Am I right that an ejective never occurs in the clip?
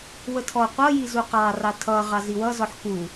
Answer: yes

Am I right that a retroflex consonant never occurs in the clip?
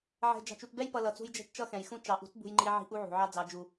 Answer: yes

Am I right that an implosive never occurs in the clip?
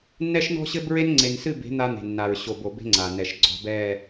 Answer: yes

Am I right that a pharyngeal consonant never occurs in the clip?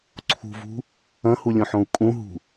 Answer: no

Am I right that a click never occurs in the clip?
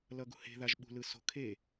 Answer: yes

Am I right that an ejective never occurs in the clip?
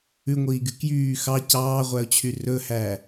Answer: yes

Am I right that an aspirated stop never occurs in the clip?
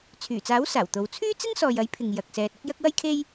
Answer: no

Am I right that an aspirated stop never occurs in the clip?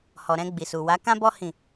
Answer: yes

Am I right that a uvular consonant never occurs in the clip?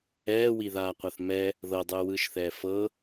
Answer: no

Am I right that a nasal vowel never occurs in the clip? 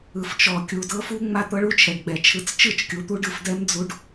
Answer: yes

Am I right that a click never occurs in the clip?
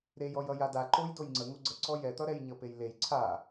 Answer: no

